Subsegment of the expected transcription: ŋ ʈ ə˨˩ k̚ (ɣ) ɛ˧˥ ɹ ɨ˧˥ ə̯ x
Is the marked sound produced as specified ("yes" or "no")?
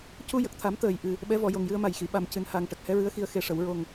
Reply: no